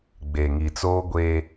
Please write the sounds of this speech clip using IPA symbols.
ɡ͡b e˨ ŋ i˨ t͡s oː˦ ɡʷ e˦

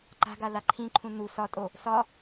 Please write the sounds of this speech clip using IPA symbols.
ǃ a̤ ɡ a l a ǃʰ ĩ ǃʰ ũ n u s ɒ tʼ o | s ɒ

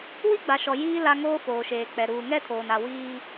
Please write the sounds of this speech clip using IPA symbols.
w i˦ ɡ͡b a˨ ʃ ɔ˨ j iː˦ l a˦ ŋ oː˦ f oː˨ ʃ eː˨ k͡p ɛ˨ ɾ uː˨ ŋ ɛ˦ tʰ oː˨ n a˨ w iː˦

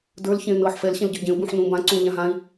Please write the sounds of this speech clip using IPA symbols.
d ə˞ l ç ẽ y̯ n ɤː ħ f ɛ l ɕ ẽ l ɟ ə˞ ɟ ẽ u̯ b ũ ħ n ũː b ã ǀ ũː ʎ ã ɦ ã i̯

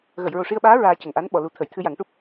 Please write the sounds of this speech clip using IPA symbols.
ɣ ə˨˩˨ j ɹ o˨˩ ʂ i˧ ə̯ ɓ aː˧˥ ɹ aː˧ c ə˨˩ ŋ ʔ a˧˥ n ɓ ɔ˨˩˨ l u˨˩ t̪ʰ ə˨˩˨ j t̪ʰ ɨ˧ j a˨˩˦ ŋ ʈ u˦˥ p̚

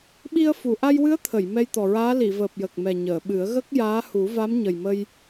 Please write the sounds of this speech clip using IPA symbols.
ɓ i˧ ə̯ f u˨˩˨ ʔ a˧ j w ɨ˧˥ ə̯ t̪ʰ ə˨˩˨ j m ɛ˧ j t̪ ɔ˨˩ ɹ aː˧˥ l i˨˩˨ v əː˨˩ p̚ j ə˨˩ k̚ m ɛ˨˩ ɲ əː˨˩˨ ɓ ɨ˨˩˦ ə̯ ɣ ə˦˥ k̚ j aː˧˥ h u˨˩˦ v a˧˥ m ɲ ə˨˩ j m ə˧ j

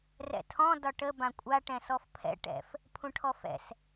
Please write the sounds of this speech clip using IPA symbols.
r ɛ̰ tʰ ɔ̃ d ɒ ʈ ə b ã kʷʼ a ʈ ɛ̃ s ɔ f pʰ ɛ̰ ʈ ɛ̰ f | pʰ ũ ʈʰ ɔ f ɛ̰ s

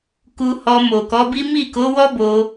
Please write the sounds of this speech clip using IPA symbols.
k u˧ h ɔ˧ m o˨ k ɔ˨˦ b i˦ m i˦˨ k o˨˦ w ɔ˦ b o˧

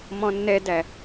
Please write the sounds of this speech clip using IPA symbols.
m ɔ̃ nː ɛ d æ

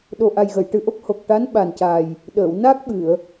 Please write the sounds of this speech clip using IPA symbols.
ɗ o˨˩ ʔ a˨˩ j ɣ ə˨˩˨ j ʈ ɨ˨˩ ʔ o˦˥ k̚ h o˨˩ k̚ ʈ a˧˥ n ɓ a˨˩ n c a˨˩ j | ɗ əː˨˩˨ w n a˦˥ k̚ ɓ ɨ˨˩˨ ə̯

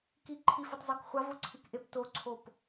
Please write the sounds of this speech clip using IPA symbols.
k i ǃʰ i f ɯ tˤ z ɔ k χʷ a v o ǀʰ i k ʔ e p t o ǀʰ o p

